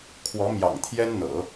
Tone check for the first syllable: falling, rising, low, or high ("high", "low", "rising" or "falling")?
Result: rising